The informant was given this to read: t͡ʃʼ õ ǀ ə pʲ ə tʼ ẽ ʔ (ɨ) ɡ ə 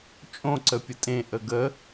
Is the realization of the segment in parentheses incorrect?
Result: yes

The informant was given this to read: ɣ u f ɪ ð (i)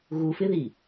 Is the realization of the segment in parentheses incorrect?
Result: no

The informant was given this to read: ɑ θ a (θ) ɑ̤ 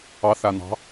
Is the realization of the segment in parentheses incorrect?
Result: yes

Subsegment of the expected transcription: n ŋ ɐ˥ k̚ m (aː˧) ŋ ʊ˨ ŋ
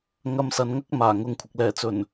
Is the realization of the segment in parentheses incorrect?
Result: yes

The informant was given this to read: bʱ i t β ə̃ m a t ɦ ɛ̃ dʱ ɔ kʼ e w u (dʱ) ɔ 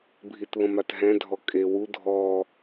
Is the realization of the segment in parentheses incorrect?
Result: no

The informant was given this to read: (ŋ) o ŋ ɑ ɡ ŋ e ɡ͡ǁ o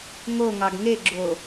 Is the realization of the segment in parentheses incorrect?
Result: no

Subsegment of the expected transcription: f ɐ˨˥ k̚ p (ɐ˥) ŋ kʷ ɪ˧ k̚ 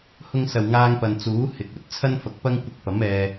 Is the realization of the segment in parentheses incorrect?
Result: no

